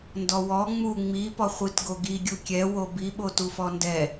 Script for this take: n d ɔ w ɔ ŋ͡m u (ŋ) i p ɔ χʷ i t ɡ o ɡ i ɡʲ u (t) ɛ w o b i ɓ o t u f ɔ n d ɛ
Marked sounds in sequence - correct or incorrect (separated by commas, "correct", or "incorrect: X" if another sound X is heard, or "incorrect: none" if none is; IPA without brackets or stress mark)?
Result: incorrect: ŋ͡m, incorrect: kʲ